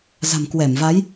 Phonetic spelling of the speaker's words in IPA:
z a̤˨˩ m k w ɛ˧˩ m v a˨˦ j

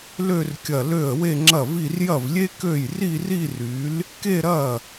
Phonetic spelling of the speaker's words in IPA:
l ø˥˧ r kʲ ɐ˧˩ l ø˥˩ ə̯ w e˥˧ ŋ͡ǁ ɐ˥˩ v i˥˧ r j ɐ˥˩ v lʲ e˥ k ø˥˩ j r i˥˧ r i˥˧ r y˨˥ l | k e˥˧ ɾ ɐ˥˩

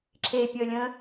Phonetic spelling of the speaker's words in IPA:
ǁʰ e pʲ əː lʲ ə̃ː

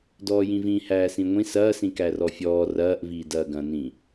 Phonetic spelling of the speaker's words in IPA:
d ɔː j ĩ v ĩ h æː s ĩ ŋʷ ĩ s ɐː s ĩ k æ r ɔ fʲ ɔː r ɐː ʔ v iː d ɐː ɡ ɐ̃ n ĩ

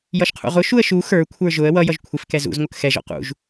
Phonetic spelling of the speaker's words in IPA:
j ʌ ʃ qʰ ṵ ʁ ʊ ʃ u ə̯ ʃ u x ə˞ kʷʰ ə˞ ʒ ʊ ə̯ w ʌ j ʌ ʒ kʷʰ ɪ f k ɛ z ṵ z ŋʷ ʌ k x ɛ ʒ ɔ̰ q ṵ ʒ

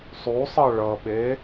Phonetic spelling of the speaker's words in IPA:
sˤ u sˤ ʌ ɭ ʌ ɓ e

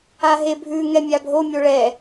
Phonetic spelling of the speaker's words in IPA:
a ɦ e bʱ ʉ ŋ ɛ mʲ a bʱ o mʲ o ɭ ɛ

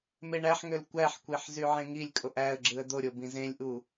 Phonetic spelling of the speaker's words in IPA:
m e ɳ æ ħ ŋ ø l kʷ æ ħ kʷ e ħ z y ʕ ẽ ŋ i lʲ kʼ o ʔ æ ə̯ ɡ͡ǁ ɯ ə̯ d̪ o ɾʲ o b ĩ z ẽ lʲ ʔ u

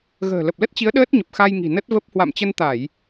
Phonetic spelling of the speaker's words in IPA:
ɣ ə̤ː˨˩ l ə˨˩ p̚ l ə˦˥ t̚ t͡ɕ i˨˦ ə̯ ɗ əː˦˥ t̚ ɲ ə˨˩ p̚ x a˧ j ŋ i̤˨˩ n ə˦˥ t̚ v ə˦˥ p̚ h w a̰˧˨ m t͡ɕ ə˧ n t̪ a˧˩˨ j

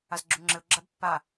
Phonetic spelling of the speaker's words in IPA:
a z ɡ͡ǁ u ŋ͡ǁ ɘ ʊ̯ ɡ͡ǁ a b pː a

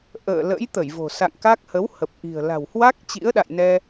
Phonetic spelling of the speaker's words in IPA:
ʔ ə̰ː˧˨ l ə̰˧˥ j t̪ ə˧˩ j v o̤˨˩ s a̰˧˨ ŋ k a˦˥ k̚ h ə˨˦ w h ə˨˩ p̚ ʔ i̤˨˩ ə̯ l a̤˨˩ w h w a˦˥ k̚ t͡ɕ ḭ˧˥ ə̯ ɗ a̰˧˨ j n ɛ˧

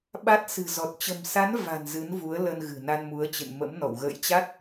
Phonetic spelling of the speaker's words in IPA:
ɓ a˦˥ t̚ s ɨ̤˨˩ z ɔ˨˩ t̚ t͡ɕ ə̤˨˩ m s a˨˦ n v a̤˨˩ n z ɨ˨˦ n v u˨˦ ə̯ l ə˧ n ɣ ɨ̤˨˩ n a˧ n m u˨˦ ə̯ t͡ɕ ɨ̰˧˨ n m ə̰˧˥ m n ɔ̰˧˨ w ɣ ə̰ː˧˨ j t͡ɕ a˦˥ t̚

